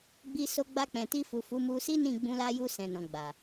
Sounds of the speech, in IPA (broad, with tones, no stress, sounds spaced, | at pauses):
ɡ͡b i˧ s o˧ ɡ͡b a˧ k͡p ɛ̃˨ t i˧ f u˨ f u˨˦ m u˧ s i˦ n ĩ˦˨ ɡ͡b ũ˧ l a˧ j u˧ s ɛ̃˨ n ɔ̃˨ ɡ͡b a˨